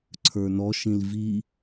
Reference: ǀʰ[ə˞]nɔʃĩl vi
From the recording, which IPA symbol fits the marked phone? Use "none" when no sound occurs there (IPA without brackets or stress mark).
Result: ə˞